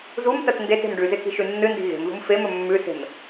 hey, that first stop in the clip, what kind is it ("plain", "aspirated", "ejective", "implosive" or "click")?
plain